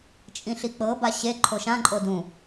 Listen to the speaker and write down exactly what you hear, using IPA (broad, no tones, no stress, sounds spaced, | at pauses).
t͡ʃʼ ĩ ɬ i k͡p ɤ b a ɕ e ǃʰ o ʃ ã ǃʼ o d ũ